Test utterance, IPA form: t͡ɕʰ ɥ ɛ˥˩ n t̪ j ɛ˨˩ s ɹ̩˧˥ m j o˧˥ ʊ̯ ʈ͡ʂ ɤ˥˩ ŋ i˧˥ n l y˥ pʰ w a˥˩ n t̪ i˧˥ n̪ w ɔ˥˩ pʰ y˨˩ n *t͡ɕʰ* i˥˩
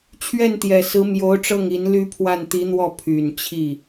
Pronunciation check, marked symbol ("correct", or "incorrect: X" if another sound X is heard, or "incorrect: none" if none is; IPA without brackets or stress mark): correct